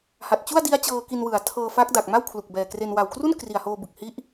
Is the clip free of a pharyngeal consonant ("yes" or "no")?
yes